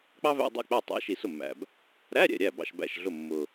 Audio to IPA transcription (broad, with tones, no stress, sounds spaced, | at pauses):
k͡p ɑ˥ v æ̰˧˥˧ dˤ ɛ̰˥˩ k͡p æ˥˩ tˤ æ̰˧˥ ʃ i˨˩ s ʊ˥˩ mː æ̰˨˩ b | ɾ æ˧˥˧ ɾʲ ɛ̰˥˩ ɾʲ æ˥˩ b ɑ̰˥˩ ʃ b æ̰˥˩ ʃ ɮ ʊ˥˩ mː ʊ˨˩